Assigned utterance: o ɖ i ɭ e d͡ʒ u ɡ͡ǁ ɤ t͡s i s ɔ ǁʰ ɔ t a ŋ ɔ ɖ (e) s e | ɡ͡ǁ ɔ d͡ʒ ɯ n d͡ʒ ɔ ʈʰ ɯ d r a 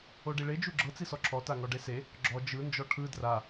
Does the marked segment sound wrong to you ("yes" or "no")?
no